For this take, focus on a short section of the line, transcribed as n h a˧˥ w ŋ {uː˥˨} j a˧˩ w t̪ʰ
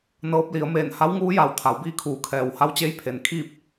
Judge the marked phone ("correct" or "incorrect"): incorrect